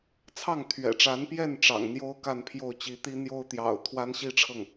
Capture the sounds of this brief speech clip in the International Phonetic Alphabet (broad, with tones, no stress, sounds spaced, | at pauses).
t͡sʰ ɑ˥˩ ŋ t̪ʰ ɥ ɛ̰˨˩ ʈ͡ʂ a˧˥ n p j ɛ˥˩ n ʈ͡ʂ ɑ̰˨˩ ŋ n̪ j o˥ ʊ̯ k a˥˧ n pʰ j o˥˩ ʊ̯ t͡ɕ i˧˥ t̪ i˥ n̪ j o˥ ʊ̯ t̪ j ɑ̰˨˩ ʊ̯ t̪ʰ w a˥ n ɕ i˥˧ ʈ͡ʂʰ ɤ˥˩ ŋ